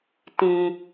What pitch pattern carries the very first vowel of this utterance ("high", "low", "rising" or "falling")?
low